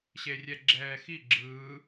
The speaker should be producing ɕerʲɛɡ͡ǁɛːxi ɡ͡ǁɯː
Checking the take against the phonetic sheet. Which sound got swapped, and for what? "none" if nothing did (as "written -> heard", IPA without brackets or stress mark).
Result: none